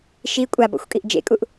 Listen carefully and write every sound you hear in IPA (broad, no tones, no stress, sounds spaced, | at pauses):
ʃ i kʷʼ a b ɔ̰ xʷ kʼ i ʔ d͡ʒ ḛ kʼ u ʔ